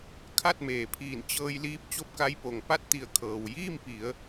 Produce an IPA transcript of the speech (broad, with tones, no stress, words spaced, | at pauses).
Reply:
kʰa˥˨t̚meː˩pʰiː˧˩n t͡ɕɤː˧jliː˧˥p̚ t͡ɕo˥˨p̚ka˧˥jpo˩ŋ pa˥˨t̚t̪i˧˩ə̯ kʰɤː˩wjiː˥˨mpi˩˧ə̯